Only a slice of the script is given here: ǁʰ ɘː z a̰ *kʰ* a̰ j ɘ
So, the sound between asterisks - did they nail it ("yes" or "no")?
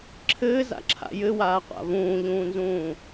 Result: no